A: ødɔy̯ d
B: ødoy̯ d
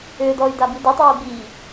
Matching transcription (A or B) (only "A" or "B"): A